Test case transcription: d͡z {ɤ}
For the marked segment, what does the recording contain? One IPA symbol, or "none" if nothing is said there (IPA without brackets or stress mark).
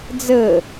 ɤ